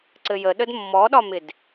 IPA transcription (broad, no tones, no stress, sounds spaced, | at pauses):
ǀ ɘ j ə ɗ ə d mː ɔ ɗ ɒ m ɪ d